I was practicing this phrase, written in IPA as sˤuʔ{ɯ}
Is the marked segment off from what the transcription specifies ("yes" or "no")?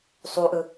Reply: no